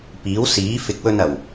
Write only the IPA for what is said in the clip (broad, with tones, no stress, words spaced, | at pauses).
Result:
piː˨˥wsiː˨˥ fɪ˨˥k̚wɵ˧n ɐ˨˩w